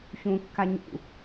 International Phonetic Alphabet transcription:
ç ũ kː a ɲ ṵ

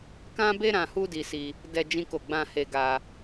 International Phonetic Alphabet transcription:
k ã˦ b e˦ ɾ ã˧ h u˦ d i˧ s i˧ | d ɛ˧ d͡ʒ ĩ˦ k o˦˨ ɡ͡b ã˧ h e˧ ɡ a˧

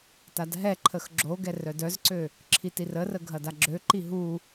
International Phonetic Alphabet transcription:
t a d ɦ ɛ ǃʰ ə x ɡ͡ǁ o ɡ ɛ r œ d œ z ǀ ø | ǁʰ i t i r ə r ə ɡʱ ɐ d a ɡ͡ǁ ø ǃ i ɦ u

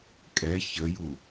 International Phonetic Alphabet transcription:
kʼ ɛ ç ə j u

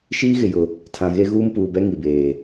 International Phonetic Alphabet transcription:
ʃ iː˦ ɣ ɪ˨ j ʊ˨ | tʰ ã˨ ɣ e˦ ɣ uː˦ m p uː˨ b ɛ˦ ŋ i˨ b eː˨

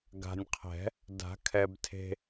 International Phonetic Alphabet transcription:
ɡ a̤˨ nʲ qʰ ɛ̤˨˩˦ | d a̤˨˩˦ kʰ ɛ˨ b tʰ e̤˨

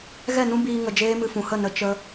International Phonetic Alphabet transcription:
ɣ ɛ˦˨ n ũ˦ b iː˧ ŋ ə˧ d͡ʒ eː˦ m ɨ˧ f ũ˨ h ə˦˨ n ə˧ t͡ʃ ə˧

